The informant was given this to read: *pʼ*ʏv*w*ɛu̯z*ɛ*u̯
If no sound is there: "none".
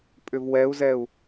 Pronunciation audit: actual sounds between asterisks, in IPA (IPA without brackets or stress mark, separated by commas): pʼ, w, ɛ